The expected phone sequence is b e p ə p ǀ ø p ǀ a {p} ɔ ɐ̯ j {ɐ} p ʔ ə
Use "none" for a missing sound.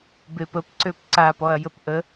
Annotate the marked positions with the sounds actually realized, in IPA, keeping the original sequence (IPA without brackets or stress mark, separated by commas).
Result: p, ə